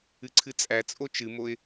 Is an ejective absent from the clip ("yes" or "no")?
no